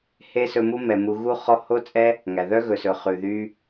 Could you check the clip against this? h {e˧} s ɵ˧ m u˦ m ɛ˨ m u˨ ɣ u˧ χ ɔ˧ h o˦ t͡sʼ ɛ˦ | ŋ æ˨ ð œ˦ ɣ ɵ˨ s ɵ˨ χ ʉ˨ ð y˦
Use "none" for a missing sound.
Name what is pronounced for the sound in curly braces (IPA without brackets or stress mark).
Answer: e˦